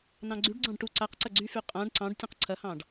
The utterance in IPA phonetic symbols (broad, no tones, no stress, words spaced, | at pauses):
nɑ̃ɡ͡ǀyɖɡ͡ǀɑ̃ɖ ʈu ǀaqǀɐ ɡ͡ǀyfy qʼãɖ ǀɑ̃ɖtʲə̃q ǀʰɐhɑ̃ɖ